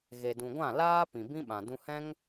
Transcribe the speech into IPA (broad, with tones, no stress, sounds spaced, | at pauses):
ɣ e˨ d ũ˨ ɡʷ ã˦˨ l aː˦ p ĩ˨ b ĩ˦ ɓ ã˨ d ũ˧ h ɛ̃˦ ŋ